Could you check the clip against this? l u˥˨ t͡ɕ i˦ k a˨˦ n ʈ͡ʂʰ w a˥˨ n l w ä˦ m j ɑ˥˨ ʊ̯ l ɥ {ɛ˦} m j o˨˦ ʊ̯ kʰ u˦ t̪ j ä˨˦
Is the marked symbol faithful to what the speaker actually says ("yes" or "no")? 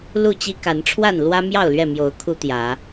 no